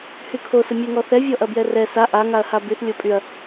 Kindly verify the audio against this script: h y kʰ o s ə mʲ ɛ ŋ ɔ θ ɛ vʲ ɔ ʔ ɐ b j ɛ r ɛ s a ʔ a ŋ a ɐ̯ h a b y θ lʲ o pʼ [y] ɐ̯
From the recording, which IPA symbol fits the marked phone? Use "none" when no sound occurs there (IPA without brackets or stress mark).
y